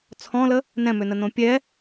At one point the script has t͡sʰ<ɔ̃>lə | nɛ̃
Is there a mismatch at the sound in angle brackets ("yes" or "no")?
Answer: no